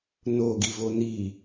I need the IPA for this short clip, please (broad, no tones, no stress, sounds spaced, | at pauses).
n o ɡ i v o n i